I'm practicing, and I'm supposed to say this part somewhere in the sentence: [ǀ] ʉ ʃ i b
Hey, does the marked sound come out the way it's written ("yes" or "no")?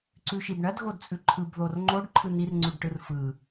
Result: yes